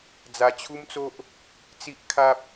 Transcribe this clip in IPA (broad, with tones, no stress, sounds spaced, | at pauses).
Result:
d͡z a˧ t͡ɕʰ u˦ m t͡s o˦ ʔ | t͡s i˦ ʔ kʰ a˦ p̚